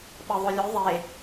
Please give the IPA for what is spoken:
ɓɤðˤulʲu ðˤe

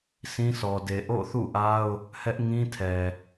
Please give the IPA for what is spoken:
sĩ˦sɔ˨ de˨ʔo̰˦˨θṵ˦˨ʔa˦ʊ̯ | hɛ˦ʔ ŋĩ˦tʰɛ˨

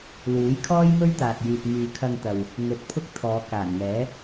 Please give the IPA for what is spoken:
luː˨˥jkʰɔː˥j mɵ˥ɥt̪aː˨t̚jyː˨t̚ myː˨kʰɐ˧ŋt̪ɐ˨w | ŋɵ˧t̚pʰʊ˥k̚ t̪ʰɔː˨˧ kaː˨˩nŋɛː˨˥

